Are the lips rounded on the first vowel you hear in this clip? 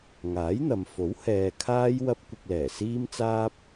no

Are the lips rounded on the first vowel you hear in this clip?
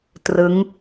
no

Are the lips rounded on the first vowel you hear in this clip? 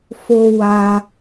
yes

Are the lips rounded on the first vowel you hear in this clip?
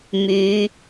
yes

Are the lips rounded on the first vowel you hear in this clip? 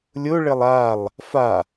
yes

